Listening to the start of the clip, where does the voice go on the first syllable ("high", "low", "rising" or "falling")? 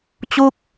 falling